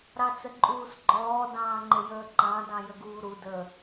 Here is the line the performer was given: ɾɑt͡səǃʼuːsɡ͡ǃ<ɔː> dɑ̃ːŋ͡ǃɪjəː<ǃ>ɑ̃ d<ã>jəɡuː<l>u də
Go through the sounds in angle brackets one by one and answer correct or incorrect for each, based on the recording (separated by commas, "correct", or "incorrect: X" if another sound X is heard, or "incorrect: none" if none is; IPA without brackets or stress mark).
correct, correct, incorrect: ɑ̃, incorrect: ɾ